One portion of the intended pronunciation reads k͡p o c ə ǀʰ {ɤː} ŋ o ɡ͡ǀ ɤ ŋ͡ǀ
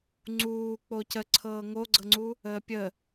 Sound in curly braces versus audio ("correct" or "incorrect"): correct